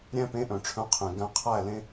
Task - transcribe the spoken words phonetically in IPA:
ɾʲ æ̃˧ p ẽ˨˦ ʔ œ̃˨ ʈ͡ʂʰ œ̃˧ qʰ ẽ˨ ɡ æ̃˧ qʰ æ˦˨ l ẽ˧

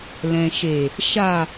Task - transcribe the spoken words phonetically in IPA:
l ɛ̃˨ ʃ e˨ | ʃ a˨

